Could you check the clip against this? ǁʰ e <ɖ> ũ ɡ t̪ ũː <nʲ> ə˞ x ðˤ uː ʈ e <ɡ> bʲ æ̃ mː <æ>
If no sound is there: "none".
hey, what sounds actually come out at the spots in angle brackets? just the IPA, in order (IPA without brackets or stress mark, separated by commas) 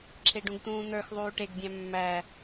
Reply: ɖ, n̪, ɡ, æ